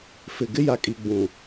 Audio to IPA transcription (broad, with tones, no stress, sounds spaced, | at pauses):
f ɪ˨ ɡ ɪ˦ j a˨ kʼ i˨ ɡ͡b ũ˨